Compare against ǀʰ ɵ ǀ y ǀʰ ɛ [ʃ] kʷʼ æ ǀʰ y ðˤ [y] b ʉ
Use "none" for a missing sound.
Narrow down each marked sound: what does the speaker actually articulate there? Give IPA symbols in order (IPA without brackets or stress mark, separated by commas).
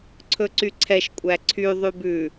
ʃ, y